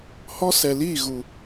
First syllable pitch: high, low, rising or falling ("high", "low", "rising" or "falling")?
high